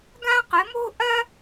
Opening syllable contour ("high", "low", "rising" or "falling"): high